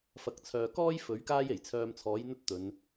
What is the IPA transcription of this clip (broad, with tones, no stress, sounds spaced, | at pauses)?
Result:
f ɐ˨ k̚ t͡sʰ œː˨ k ɔː˥ j f ɵ˨˥ ɥ k aː˥ j e˨˩ j t͡sʰ œː˧ m t͡sʰ ɔː˨˥ j n̪ ɵ˥ t̚ t̪ ɵ˨˧ n